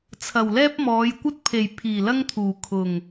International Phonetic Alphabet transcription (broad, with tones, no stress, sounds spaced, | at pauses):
t͡sʰ ɐ˨˩ w l ɛː˥ p̚ m ɔː˨˧ j kʷ ɐ˥ t̚ pʰ e˨˩ j pʰ iː˨˩ l ɐ˥ ŋ t̪ʰ uː˨˩ kʰ ʊ˨˩ ŋ